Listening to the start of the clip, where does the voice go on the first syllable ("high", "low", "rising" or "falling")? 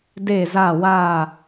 falling